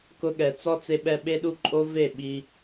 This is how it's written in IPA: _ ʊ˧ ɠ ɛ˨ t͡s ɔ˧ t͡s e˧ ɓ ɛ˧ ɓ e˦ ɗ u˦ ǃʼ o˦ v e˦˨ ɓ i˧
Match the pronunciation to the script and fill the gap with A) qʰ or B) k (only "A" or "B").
B